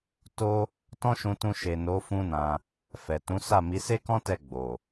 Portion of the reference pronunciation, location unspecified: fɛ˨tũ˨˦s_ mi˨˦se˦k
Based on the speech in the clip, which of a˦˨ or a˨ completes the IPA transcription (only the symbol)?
a˦˨